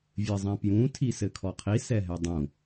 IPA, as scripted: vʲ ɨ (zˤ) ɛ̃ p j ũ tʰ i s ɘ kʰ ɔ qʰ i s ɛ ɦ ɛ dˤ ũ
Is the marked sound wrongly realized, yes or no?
no